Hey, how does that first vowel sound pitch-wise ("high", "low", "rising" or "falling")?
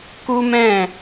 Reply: high